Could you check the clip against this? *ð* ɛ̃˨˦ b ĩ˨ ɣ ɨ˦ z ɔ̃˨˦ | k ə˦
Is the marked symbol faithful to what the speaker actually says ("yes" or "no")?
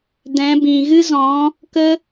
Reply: no